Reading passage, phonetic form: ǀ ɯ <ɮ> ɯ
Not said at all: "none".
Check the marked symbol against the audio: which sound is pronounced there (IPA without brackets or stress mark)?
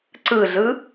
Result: ɮ